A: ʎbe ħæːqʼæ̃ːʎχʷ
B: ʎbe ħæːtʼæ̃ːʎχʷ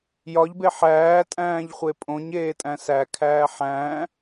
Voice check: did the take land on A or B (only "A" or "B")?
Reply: B